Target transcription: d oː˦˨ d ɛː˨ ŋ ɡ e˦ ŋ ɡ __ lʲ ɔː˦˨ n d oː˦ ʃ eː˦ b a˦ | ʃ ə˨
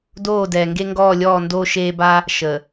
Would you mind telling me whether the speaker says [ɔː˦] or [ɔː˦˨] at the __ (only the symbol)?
ɔː˦˨